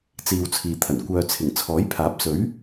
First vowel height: high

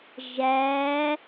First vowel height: low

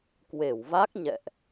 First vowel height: mid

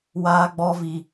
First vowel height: low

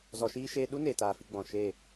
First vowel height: mid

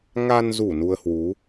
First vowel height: low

